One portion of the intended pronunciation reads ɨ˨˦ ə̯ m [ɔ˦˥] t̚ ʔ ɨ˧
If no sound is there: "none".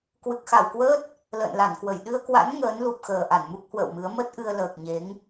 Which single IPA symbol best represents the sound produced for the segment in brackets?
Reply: ə˦˥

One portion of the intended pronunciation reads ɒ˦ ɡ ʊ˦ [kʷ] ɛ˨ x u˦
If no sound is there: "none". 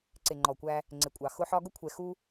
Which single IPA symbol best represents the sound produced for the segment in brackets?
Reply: kʷʰ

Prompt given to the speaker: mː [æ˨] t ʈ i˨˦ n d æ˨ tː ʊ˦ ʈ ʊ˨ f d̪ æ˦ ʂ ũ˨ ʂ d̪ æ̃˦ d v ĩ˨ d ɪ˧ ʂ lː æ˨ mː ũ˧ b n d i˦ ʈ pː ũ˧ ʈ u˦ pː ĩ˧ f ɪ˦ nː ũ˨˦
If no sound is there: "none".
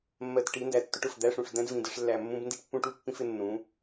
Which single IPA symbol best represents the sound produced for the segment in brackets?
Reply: ɜ˨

